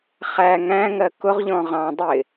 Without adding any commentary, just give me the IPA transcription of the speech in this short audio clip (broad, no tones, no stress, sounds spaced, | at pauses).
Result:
χ æ ŋ æ̃ ŋ ɜ k ʊ ʁ ʎ ɔ̃ ʁ ɑ̃ dˤ ɪ